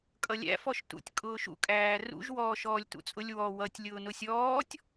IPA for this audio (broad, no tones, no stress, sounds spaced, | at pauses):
kʼ ʌ lʲ æ̰ f ɔ ʃ t ṵ tʲ kʼ ʊː ʃ ṵ kʼ æː r ṵ ʒ w ɔː ʃ ɔː lʲ t ṵ t͡sʼ ʊ lʲ w ɔ w ʌ tʲ lʲ ʊː n ʊ sʲ ɔː tʲ